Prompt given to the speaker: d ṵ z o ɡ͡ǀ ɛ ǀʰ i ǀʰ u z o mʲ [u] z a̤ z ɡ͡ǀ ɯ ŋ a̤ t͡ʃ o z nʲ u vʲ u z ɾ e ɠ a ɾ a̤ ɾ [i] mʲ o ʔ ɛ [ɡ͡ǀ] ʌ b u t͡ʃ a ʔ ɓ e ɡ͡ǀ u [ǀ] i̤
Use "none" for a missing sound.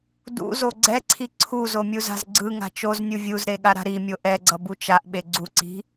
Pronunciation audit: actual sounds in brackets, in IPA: u, i, ɡ͡ǀ, ǀ

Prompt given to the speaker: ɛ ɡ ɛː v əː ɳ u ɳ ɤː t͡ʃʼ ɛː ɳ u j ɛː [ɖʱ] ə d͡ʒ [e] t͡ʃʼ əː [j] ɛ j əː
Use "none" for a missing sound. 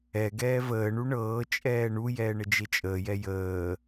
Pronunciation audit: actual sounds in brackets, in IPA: ɳ, e, j

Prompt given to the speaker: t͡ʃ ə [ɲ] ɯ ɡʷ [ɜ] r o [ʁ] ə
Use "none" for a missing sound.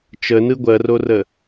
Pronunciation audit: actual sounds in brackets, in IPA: n, ɜ, r

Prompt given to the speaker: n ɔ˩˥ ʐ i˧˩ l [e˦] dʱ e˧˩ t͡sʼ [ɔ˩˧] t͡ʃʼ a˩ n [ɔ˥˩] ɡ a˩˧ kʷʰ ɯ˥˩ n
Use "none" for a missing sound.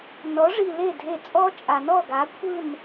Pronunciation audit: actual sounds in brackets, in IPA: e˥˩, ɔ˦, ɔ˥˩

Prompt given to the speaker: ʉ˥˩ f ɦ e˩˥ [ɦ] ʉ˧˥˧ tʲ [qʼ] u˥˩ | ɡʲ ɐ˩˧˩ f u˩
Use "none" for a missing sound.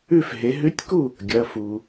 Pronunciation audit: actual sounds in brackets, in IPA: ɦ, k

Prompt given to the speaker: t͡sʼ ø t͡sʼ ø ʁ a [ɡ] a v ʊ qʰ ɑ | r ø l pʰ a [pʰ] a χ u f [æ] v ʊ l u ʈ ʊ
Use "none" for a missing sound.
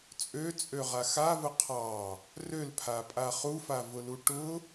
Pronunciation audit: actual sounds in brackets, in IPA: x, pʼ, a

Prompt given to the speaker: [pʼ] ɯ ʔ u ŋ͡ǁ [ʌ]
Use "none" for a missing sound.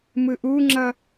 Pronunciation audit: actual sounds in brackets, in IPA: m, ʌ

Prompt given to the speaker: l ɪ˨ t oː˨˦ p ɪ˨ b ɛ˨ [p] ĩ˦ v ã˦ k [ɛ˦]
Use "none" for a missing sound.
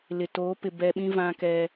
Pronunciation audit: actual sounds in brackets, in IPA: ɓ, ɛ˦

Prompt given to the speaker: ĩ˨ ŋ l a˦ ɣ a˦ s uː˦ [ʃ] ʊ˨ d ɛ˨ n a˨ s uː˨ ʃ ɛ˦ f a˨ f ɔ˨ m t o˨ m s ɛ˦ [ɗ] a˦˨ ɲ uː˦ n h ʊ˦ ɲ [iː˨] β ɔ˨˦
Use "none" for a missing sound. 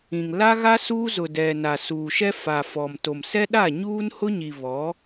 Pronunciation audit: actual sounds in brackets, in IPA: z, ɗ, i˨

